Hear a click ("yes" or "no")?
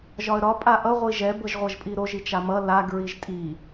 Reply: no